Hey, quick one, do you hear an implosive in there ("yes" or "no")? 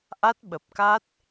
yes